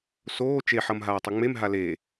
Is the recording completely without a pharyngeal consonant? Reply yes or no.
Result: no